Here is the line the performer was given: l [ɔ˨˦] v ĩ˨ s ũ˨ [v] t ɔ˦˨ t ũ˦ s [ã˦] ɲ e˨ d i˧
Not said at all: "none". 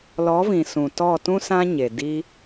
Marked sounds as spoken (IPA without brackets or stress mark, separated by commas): ɔ˨˦, none, ã˦